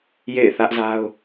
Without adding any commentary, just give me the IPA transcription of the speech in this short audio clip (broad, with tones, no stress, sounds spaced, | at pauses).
j ḛ˦˨ ɪ̯ θ ä˦ ʔ z a˦ ʊ̯